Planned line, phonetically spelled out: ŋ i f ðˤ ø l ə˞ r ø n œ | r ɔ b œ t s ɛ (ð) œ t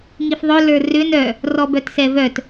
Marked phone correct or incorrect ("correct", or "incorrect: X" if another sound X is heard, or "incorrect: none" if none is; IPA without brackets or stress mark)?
incorrect: v